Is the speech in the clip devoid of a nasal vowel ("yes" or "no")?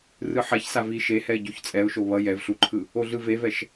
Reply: yes